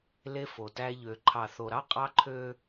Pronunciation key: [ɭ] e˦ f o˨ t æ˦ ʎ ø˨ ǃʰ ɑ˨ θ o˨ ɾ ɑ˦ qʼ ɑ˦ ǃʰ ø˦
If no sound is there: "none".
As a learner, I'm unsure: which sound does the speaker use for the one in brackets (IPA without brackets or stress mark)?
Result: l